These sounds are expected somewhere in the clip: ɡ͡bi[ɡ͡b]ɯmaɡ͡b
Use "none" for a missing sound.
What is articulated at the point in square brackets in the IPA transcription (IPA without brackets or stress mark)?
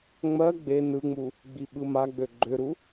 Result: ɓ